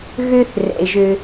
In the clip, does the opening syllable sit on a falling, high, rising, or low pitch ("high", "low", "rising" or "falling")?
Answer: high